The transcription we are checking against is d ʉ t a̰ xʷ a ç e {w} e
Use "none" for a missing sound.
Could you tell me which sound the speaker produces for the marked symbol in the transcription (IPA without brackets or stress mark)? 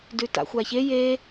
j